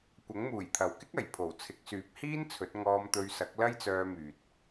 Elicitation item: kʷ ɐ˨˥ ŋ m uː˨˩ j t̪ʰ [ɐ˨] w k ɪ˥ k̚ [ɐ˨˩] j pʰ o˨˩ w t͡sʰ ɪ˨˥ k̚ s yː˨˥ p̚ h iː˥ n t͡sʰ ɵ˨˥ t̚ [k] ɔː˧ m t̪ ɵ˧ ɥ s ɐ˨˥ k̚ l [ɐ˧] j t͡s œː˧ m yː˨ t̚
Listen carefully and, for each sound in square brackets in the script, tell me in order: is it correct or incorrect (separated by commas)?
correct, correct, incorrect, incorrect